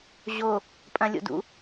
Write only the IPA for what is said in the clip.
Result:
ʑ o | pʼ ɐ̃ lʲ o̰ d ṵ

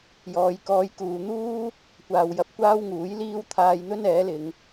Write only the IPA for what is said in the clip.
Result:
j ɔː˧ j k ɔː˧ j k uː˨ n̪ uː˥ | kʷ aː˨ w j ɐ˧ p̚ kʷ aː˥ w ŋ uː˨˥ j l iː˥ w t̪ʰ aː˧ j n̪ ɵ˥ n ɛː˨˥ l ɪ˨˧ ŋ

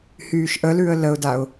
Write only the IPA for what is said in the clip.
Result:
h yː ʃ ʔ ə l ʉ ə̯ l ə ʊ̯ d a ʊ̯

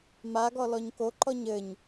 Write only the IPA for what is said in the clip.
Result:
m a ɡ ɔ l ɔ ɲ k o ǃ ɔ ɲ ɘ ɲ

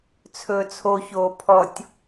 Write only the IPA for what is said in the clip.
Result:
t͡sʰ ɵː t͡sʰ o ç oː pʰ ɔ tʲ

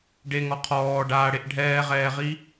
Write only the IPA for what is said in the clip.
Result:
ɖ e ŋ ɔ qʰ ɔː ɖ aː ɽ e ʔ ɖʱ ɛː ʁ ɛː ʁ i

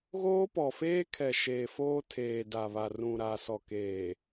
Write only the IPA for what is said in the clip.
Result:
ɣ oː˦ p ɔ˨ f eː˦ kʰ ɛ˨ ʃ eː˨ f oː˦ tʰ eː˨ d a˨ β a˨ r ũ˨ ɾ a˨ s ɔ˨ k eː˨

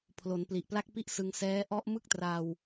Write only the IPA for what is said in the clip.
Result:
pʰ l o˩˦ n p l i˨˩ ʔ p l a˥˩ k̚ p i˥˩ ʔ s ɯ˧ ŋ s ɛː˦˥ ʔ ɔ˦˥ ʔ m ɯ˥˩ k̚ t r a˧ w

